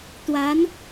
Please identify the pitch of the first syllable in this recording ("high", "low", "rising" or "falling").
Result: rising